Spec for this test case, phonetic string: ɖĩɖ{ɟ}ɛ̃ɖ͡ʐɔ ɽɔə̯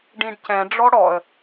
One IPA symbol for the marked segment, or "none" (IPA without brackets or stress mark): c